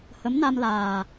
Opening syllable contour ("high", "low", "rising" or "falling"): rising